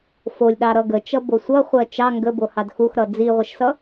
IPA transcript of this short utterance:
f o lʲ ɗ ɑ ɾ ʌ ɡ ə t͡ʃ ʌ b o sʷ ʌ χʷ ɜ t͡ʃ ɑ ŋ ɡ ə b o h ɑ d x u x ɾ ʌ d͡z i ʁʷ ə ʃ s ʌ

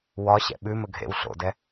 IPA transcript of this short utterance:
w ɒ ɕ ɛ̰ ɓ ʉ m ɵ ɡʱ ḛ w ɬ o̰ d ɛ

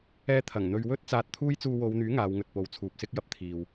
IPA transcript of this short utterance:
ɛː˧ t̪ʰ ɐ˨˩ ŋ n̪ ɵ˨ ɥ w ɵ˥ t̚ t͡s aː˧ t̚ t̪ʰ uː˥ j t͡s uː˧ w o˨˧ w n̪ yː˨˥ ŋ aː˨˧ w ŋ ɵ˨ t̚ p o˨˥ w t͡sʰ uː˨ p̚ s ɪ˥ k̚ j ɐ˧ p̚ t̪ʰ iː˨ w

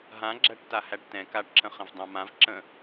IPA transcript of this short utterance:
ɦ ã ɡ͡ǁ æ ʈ t a h æ ʈ t ɛ̃ k a ʈ ǁ ə̃ χ ə̃ v dˤ ã m ã v ǁ ə̃

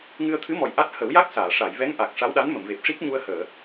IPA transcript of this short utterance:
ŋ ɨ˧ ə̯ t̪ʰ ɨ˧˥ m ɔ˨˩ j ʔ a˦˥ t̚ h ə˨˩˦ w j a˦˥ k̚ s aː˨˩˨ ʂ a˨˩˨ j v ɛ˧˥ ŋ ʔ a˨˩ k̚ ʂ a˧˥ w ɗ a˧˥ n m ə˨˩˨ m v e˨˩ p̚ ʂ i˦˥ k̚ ɲ u˧ ə̯ h əː˨˩˨

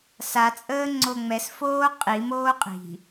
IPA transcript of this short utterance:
s a t͡sʼ əː ŋ͡ǀ o ŋ͡m ɛ s f oː qʼ i m oː qʼ i̤

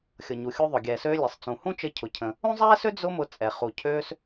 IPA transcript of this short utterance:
xʲ ɤ˩ ɲ u˩ xʲ u˧ ðˤ ʊ˩ ɡʲ ɛː˩ s øː˧ lʲ ɛ˩ sˤ t͡s ũ˩ h ũ˥ t͡ʃ ə˧ cʰ ʊ˩ cʰ ə̃˩ | ũ˥ zˤ ɛː˥ s ø˥ d͡z ʊ˥ m ʊ˧ t͡sʼ ɛ˩ χ u˩ cʰ øː˧ s

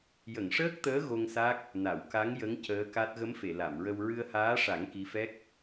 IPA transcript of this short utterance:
j ə˨˩˨ ŋ ʂ əː˦˥ k̚ t̪ əː˧˥ ɣ o˧ ŋ s a˦˥ k̚ | n a˨˩˨ w k a˧˥ ŋ j ə˧˥ ŋ c əː˧˥ k a˦˥ t̚ ɣ ə˧˥ m f e˨˩˨ l a˨˩˨ m ɹ ə˧ w ɹ ɨ˧ ə̯ h aː˧˥ ʂ a˨˩˦ ŋ k i˧˥ f ɛ˦˥ k̚

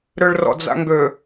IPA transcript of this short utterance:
ɾ ø ɭ r ɔ̰ d͡z a̰ ŋ ɡ ø

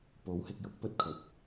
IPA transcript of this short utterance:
p o˨˥ w h ɪ˧ k̚ j ʊ˨˥ k̚ p ɵ˥ t̚ kʰ ɵ˨ t̚

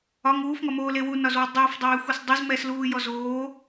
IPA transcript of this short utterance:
ɒ ŋ uː f ŋ ɒ m oː l e w u n ɒ z w ɒ dˤ uː f dˤ eː xʷ ɛ s dˤ u z m ɛː s l uː j ɔ z oː

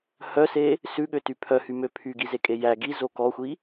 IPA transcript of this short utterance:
h œ s e | s ʉ ɠ ø t y pʰ œ h y m ø pʰ y ɡ i z e kʼ e j æ ɡ i z o k ɔ xʷ i

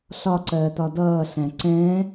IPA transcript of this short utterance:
ɬ ɒ ǀ ɜː t ɒ d ʌː ɬ æ̃ ǀ ɛ̃ː

